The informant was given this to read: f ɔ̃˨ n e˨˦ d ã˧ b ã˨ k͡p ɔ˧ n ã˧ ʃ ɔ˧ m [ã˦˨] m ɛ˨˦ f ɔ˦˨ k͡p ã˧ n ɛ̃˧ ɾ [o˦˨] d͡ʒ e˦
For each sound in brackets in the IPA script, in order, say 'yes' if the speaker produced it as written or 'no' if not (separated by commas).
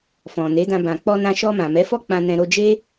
no, no